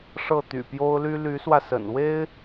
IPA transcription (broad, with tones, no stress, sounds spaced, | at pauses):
ʂ ɤ˥˩ t̪ y̰˨˩ p j o˥ ʊ̯ l y˥ l y˧˥ s w ä˧ s ə̰˨˩ n w e˥ ɪ̯